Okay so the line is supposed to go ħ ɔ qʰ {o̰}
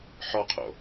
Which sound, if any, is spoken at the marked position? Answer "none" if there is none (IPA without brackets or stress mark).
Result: o̰